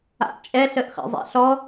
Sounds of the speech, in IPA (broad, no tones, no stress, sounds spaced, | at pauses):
a̰ ʔ t͡ʃʼ ɛ ɬ ə ʔ χ ɛ̰ zˤ ɛ̰ ɬ ɔ